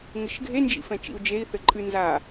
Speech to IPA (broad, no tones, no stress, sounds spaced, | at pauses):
ŋ ɘ ʃ ɡʱ e n d͡ʒ ḭ f ɛ̃ t͡ʃ ḭ u̯ d͡ʒ e i̯ θ ɘ ǃʼ ɨ n z a